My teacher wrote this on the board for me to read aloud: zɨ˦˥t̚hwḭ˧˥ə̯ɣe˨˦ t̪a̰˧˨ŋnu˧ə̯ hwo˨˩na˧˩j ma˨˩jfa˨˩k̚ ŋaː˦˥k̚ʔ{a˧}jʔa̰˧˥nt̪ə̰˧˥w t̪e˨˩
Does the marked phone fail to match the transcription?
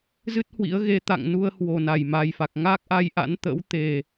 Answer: no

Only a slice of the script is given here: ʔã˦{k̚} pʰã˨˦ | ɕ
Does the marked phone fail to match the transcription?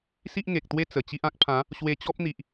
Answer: no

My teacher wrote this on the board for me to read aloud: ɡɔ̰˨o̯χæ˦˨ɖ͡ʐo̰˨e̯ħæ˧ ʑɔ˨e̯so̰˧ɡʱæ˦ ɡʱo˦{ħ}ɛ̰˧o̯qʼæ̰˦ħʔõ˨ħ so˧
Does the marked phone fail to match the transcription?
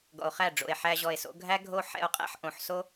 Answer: no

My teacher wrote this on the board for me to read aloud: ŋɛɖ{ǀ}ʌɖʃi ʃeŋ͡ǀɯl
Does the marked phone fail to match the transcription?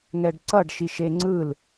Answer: no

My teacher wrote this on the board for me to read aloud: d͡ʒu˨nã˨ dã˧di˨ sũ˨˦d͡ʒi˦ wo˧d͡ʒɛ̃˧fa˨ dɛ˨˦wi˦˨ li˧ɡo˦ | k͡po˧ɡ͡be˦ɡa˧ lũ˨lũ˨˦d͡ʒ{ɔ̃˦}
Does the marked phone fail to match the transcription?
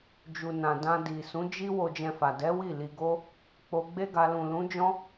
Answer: no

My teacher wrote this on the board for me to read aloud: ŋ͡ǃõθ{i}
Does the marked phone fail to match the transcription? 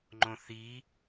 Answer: no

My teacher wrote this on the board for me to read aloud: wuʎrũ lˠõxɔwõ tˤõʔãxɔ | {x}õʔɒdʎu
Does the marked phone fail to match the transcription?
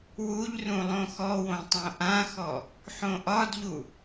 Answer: yes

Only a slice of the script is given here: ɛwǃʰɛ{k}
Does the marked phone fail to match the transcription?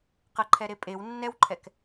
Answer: no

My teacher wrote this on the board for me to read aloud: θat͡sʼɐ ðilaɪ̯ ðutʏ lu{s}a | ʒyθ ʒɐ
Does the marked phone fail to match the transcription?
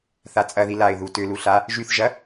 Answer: yes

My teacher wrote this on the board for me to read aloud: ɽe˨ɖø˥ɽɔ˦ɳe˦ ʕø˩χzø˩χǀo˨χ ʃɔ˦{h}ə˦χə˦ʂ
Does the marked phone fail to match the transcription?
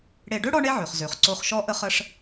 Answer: yes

